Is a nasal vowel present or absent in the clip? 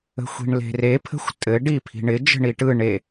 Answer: absent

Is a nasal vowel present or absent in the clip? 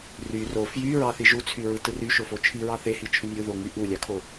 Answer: absent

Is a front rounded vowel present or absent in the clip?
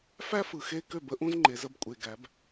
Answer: present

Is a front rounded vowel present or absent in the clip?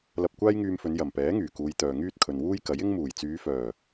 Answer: present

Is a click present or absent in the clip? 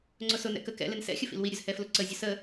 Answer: present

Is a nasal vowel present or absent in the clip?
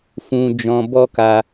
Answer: present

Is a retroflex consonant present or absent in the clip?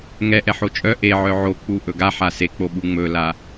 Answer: absent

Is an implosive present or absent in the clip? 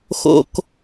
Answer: absent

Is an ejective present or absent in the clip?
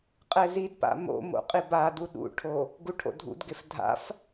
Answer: present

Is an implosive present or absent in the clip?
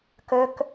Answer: absent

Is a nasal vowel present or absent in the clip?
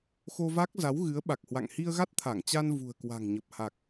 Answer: absent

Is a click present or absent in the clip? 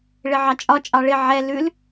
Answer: absent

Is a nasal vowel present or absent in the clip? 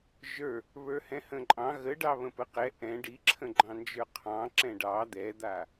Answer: present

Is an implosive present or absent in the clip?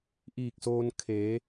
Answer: absent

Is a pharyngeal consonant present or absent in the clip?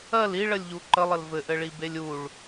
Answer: absent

